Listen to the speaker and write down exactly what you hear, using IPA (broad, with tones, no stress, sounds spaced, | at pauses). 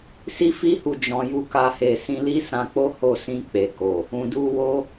s i˦ f i˦ h u˧ d͡ʒ ɔ̃˧ j u˦ k a˦ h e˧ s ĩ˧ l i˦ s ã˧ k͡p o˦ h o˦˨ s ĩ˧ k͡p e˨ k o˨ | ũ˨ d u˧ w o˦